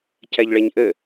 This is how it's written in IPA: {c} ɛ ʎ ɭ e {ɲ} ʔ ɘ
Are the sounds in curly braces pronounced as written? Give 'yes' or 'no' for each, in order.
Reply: yes, yes

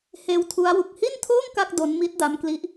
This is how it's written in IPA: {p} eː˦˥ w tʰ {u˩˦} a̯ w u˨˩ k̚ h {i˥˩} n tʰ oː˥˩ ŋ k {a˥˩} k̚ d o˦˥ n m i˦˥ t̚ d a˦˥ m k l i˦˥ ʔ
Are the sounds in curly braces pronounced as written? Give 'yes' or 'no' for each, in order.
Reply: no, no, yes, yes

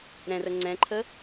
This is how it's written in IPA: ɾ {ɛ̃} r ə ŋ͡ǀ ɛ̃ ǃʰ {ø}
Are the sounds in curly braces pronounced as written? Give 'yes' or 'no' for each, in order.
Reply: yes, no

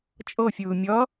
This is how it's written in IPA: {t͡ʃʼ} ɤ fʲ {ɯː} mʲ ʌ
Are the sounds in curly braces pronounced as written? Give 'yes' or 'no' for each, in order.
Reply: yes, yes

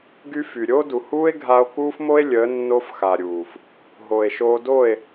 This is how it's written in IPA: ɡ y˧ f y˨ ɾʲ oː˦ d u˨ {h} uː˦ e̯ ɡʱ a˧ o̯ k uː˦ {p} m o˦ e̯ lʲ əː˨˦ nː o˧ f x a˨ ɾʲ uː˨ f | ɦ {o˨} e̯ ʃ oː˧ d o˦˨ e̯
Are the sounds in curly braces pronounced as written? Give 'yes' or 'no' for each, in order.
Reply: yes, no, yes

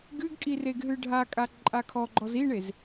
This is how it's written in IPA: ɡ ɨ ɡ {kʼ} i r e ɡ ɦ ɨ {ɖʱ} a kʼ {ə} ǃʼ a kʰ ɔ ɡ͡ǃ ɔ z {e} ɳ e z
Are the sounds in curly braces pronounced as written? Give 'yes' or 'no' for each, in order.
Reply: yes, yes, no, no

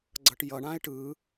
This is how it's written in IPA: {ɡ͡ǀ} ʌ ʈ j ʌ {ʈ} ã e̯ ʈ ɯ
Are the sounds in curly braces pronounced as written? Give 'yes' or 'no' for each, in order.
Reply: yes, no

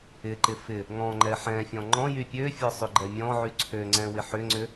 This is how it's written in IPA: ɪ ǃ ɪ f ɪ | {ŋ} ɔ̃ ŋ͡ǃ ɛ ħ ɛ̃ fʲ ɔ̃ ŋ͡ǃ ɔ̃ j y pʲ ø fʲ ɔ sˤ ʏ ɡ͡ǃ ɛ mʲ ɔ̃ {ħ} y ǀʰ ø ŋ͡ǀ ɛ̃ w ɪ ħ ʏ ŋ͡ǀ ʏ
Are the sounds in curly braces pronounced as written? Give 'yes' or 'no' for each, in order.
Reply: yes, no

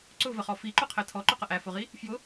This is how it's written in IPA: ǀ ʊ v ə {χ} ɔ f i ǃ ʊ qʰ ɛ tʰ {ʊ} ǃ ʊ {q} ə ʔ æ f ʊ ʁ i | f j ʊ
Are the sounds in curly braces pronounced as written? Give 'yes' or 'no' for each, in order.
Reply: yes, no, yes

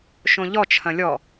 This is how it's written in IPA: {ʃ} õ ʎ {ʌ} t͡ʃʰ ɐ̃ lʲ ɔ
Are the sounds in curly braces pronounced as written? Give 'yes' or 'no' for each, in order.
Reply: yes, no

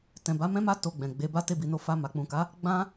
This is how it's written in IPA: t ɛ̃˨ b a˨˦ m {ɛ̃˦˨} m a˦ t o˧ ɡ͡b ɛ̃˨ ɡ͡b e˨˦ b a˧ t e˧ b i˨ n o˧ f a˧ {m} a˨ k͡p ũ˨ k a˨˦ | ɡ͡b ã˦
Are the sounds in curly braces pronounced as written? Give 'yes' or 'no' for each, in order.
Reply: no, yes

